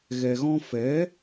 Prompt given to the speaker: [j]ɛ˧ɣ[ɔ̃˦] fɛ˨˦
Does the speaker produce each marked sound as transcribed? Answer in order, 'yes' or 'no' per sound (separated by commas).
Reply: no, yes